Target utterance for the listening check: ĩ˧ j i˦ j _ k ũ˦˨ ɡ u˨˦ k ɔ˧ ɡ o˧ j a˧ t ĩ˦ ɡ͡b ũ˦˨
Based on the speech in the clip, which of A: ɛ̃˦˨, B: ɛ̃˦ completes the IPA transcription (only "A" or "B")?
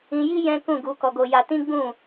B